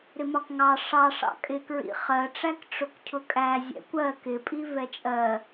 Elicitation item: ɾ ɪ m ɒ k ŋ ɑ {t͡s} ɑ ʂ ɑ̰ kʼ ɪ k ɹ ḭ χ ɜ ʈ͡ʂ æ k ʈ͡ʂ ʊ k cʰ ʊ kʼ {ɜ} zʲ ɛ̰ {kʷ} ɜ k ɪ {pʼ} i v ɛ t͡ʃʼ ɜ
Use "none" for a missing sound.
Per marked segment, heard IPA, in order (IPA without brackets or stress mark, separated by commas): ʂ, æ, kʷ, pʼ